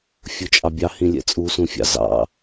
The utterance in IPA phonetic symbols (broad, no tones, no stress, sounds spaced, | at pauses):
fʲ u t͡ʃʼ ɑ bʲ ɑ h ĩ lʲ ɛ̰ t͡sʼ u s ũ fʲ ɑ̰ z ɑ̰